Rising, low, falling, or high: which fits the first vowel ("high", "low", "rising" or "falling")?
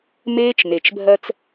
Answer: high